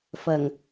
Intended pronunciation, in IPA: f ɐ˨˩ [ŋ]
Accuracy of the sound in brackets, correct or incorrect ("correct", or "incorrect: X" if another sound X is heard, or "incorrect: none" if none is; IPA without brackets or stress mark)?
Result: correct